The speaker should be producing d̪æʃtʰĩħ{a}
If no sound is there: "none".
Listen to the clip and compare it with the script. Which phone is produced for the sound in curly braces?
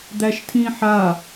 a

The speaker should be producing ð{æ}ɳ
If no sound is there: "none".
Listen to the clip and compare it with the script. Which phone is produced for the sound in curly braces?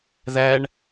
æ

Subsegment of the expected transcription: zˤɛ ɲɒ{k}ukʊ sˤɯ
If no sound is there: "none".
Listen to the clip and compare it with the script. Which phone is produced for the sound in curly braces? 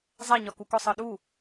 k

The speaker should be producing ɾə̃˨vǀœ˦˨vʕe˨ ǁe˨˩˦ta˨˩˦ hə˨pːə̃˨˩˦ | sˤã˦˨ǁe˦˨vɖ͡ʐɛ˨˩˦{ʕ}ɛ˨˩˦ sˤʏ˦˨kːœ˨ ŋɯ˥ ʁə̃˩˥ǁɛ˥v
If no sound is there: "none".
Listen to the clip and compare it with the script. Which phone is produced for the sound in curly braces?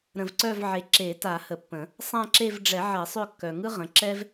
ʕ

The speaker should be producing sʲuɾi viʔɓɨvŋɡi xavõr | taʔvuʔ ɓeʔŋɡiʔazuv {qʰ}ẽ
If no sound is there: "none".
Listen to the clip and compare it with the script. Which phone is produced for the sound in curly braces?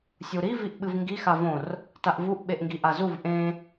ʔ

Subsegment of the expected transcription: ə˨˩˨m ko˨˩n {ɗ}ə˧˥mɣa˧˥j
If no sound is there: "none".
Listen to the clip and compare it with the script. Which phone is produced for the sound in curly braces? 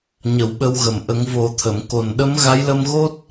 ɗ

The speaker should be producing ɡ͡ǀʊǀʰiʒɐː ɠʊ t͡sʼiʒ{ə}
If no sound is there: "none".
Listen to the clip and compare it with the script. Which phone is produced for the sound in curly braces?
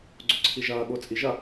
ɐ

